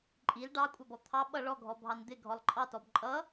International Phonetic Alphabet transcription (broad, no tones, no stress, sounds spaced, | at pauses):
ǃʼ i l ɖ ɑ kʷʼ ɑ b ɔ t̪ʰ ɑ ɓ ʌ ɭ ɔ ɡʱ ɔ bʱ ɑ n d̪ ɪ ɡʱ ɔ lˠ ǃʼ ɑ t ɔ b ǃʼ ʌ